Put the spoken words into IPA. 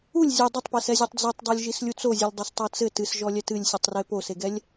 ulʲ zʲɨ dˤɐtˤpɛsɛzʲotˤ d͡zetˤdˤɛlʲ ʒislʲut͡sozʲɨlʲ dˤestˤɐt͡sɘ tɨsʒɔlʲɛ tɨlʲsʲɨtˤre poseɡɛlʲ

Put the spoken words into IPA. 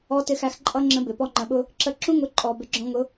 ɔ˧tɪ˧xæ˧x ǃʼʌ˦ŋ͡ǁə̃˧ bɪ˨ pɔ˧ŋ͡ǃə̃˨ɓʊ˧ | ǁə˧ ǁũ˦ŋʊ˨˦ ǃʼɔ˨bɪ˨˦ɡ͡ǁɔ̃˧ŋʊ˨˦

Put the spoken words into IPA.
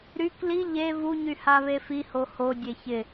ɾyk li ʎe vuɲy haβefiho hodʲe çɪ

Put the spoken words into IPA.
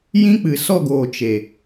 jĩ˦ k͡pɨ˨sɔ˦˨ɡoː˨ t͡ʃe˨

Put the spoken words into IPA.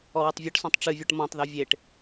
ɔwɨtˤvʲɔʈsɔ̃tˤ ʈ͡ʂɨvʲuʈ mɔ̃tˤðu vʲeʈ

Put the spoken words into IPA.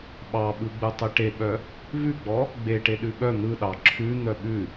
ɓɑɓɯɡ͡bɯ tˤeʈeɓœ | vʉɡ͡bɔ | ɡ͡beʈe ɗʉɓœ n̪ɯɗɑ ǁʰʉ n̪œɓʉ

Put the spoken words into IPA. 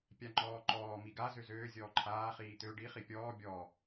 pʲaŋ͡ǃɔːǃɔː miɡa zøzøː zʲɔːǃʰaː χiːt̪ø ɖi χipʲɔː bʲɔ

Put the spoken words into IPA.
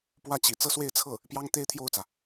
pwä˥˩t͡ɕḭ˨˩ t͡sɤ˥˧swe˥˧ɪ̯t͡sʰɤ˥˩ | pjɑ˥ŋ t̪e˥ɪ̯t̪ʰjo˥˩ʊ̯t͡sä˩

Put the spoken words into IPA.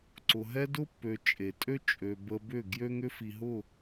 ǀʊ˨ɦɛ˧dʊ˧pːø˨ t͡ʃʼe˨tʼø˦ t͡ʃʼø˨ bə˧bʏ˦˨ ɡjø˦ŋʏ˦fi˨ɦʊ˦˨

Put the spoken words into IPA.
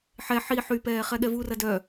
ħɛ ħi ħypɛː χɛɠɛvurɐ dœ

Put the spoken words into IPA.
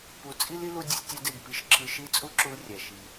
pu˧ t͡sʼi˦li˦ lu˦dʲɯ˧sʲtʲɑ˦de˦˨ɡ pi˧ʃǁʰɯ˧ʃi˦˨ t͡sʼu˦ǁu˧lrʲæ˨ ʃi˧

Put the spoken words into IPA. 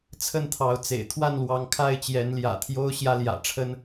t͡sʰə˥˨nt̪ʰɑ˨˦ʊ̯t͡sḛ˨˩ɪ̯ t̪ʰwa˥˨nlwɑ˨˦ŋ kʰa˥˨ɪ̯t͡ɕjɛ˨˦nljä̰˨˩t̪ʰjo˦ʊ̯ ɕjä˦ljä̰˨˩ʈ͡ʂʰə˦n

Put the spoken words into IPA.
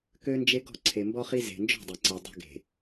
kø˦nd͡ʒe˦ ɡɔ̤˦˨ǀʰe˨mbɔ˦χi˦ ze̤˨nd͡ʒɔ̤˦˨ dˤe˨ǀe˨ dˤe̤˦ɡe̤˨

